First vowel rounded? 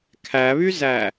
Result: no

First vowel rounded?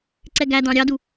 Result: no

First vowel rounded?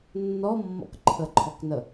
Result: yes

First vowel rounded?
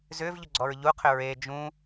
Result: yes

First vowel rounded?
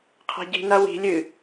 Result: no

